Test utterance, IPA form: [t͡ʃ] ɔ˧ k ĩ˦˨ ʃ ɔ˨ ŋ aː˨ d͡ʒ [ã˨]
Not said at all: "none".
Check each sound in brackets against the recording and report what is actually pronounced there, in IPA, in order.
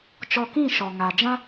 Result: t͡ʃ, ã˦

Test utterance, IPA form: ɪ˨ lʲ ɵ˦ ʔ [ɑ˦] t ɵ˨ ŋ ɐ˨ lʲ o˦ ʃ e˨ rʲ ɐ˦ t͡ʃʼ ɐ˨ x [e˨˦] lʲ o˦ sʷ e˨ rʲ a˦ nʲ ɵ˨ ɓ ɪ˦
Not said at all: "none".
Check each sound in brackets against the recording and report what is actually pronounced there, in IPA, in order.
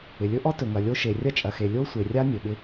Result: ɔ˦, e˨

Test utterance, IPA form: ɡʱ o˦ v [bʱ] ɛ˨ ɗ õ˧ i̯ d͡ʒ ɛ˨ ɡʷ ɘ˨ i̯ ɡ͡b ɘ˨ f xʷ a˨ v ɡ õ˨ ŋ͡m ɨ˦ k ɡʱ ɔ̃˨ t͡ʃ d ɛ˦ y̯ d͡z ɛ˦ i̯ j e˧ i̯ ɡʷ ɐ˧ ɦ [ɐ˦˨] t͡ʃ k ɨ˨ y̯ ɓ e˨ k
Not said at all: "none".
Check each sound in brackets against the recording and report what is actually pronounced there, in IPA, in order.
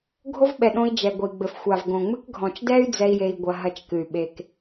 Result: ɓ, ɐ˦˨

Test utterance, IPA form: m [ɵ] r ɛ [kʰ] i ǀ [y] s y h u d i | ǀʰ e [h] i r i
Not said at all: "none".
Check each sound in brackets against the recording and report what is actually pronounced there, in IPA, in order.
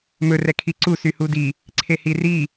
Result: ɵ, kʰ, u, h

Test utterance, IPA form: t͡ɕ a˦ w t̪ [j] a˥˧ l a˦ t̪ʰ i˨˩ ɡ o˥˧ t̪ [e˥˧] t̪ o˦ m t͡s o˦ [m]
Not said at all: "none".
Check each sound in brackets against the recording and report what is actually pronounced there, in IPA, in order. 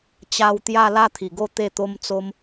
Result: j, e˥˧, m

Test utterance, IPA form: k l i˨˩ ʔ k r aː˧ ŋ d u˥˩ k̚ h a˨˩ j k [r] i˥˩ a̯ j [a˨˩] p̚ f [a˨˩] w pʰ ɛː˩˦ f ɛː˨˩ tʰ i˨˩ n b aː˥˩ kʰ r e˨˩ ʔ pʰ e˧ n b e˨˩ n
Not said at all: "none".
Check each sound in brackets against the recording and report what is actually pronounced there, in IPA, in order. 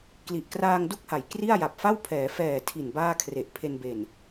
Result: r, a˨˩, a˥˩

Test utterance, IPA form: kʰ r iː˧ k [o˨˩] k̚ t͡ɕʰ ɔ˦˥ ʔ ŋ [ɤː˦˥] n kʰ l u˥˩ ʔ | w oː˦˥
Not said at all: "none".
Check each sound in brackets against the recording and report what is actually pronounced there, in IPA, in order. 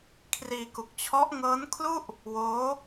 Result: u˨˩, ɤː˦˥

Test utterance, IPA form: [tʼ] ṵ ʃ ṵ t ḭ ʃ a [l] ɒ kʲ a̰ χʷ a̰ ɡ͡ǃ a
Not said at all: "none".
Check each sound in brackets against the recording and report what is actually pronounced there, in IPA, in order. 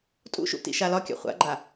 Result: tʼ, l

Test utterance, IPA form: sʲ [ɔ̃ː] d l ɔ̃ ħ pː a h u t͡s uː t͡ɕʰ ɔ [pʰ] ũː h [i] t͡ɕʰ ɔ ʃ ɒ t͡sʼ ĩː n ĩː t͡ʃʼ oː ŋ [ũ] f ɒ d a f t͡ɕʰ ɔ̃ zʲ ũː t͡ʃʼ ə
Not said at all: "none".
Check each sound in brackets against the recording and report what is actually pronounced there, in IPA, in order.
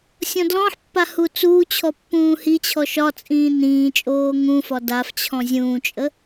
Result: ɔ̃, pː, i, ũ

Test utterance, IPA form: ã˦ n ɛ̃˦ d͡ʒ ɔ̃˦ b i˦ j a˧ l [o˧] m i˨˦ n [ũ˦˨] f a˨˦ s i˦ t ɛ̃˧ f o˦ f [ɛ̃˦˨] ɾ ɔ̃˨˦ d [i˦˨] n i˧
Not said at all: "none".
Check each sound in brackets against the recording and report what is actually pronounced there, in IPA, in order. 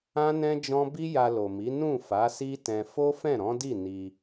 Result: o˨, ũ˦˨, ɛ̃˦˨, i˦˨

